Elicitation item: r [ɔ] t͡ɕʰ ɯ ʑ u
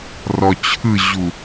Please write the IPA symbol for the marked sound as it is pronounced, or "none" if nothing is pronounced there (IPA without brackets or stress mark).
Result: ɔ